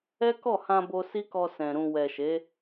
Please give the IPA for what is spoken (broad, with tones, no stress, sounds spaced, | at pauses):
ɛ˦ k ɔ˦˨ h ã˧ b o˧ s i˦ k ɔ˧ s ɛ̃˨ ɾ ũ˨ w ɛ˨ ʃ e˨˦